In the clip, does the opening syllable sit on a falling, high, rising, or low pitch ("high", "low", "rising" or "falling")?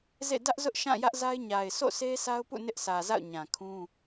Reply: falling